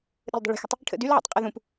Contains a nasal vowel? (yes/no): yes